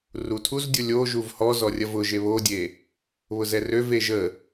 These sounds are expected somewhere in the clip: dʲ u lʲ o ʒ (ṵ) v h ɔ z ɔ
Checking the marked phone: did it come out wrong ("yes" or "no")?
yes